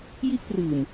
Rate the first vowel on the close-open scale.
close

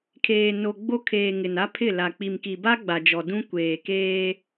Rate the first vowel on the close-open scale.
mid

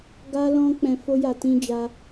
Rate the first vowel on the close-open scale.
open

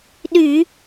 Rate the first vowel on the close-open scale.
close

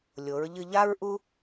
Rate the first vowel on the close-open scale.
mid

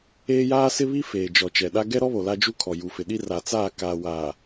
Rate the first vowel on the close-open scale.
mid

